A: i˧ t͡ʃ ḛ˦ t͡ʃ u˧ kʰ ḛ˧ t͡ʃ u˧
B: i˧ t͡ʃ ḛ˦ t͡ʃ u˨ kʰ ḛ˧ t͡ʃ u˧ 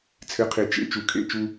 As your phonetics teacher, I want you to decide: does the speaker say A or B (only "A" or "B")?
B